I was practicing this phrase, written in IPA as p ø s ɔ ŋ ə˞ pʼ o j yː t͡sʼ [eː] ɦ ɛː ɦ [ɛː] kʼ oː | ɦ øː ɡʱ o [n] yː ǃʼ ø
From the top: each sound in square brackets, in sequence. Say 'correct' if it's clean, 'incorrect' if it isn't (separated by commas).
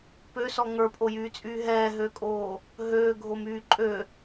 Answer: incorrect, incorrect, incorrect